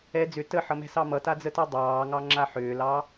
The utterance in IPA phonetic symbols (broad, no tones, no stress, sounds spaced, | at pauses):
ɛ d͡z ʏ t ə ħ ʌ m ɛ̤ s ɑ m ʌ t a d͡z ə t ə˞ dˤ ɑː ŋ ɑ ŋ͡ǁ a ħ ʏː l ɑ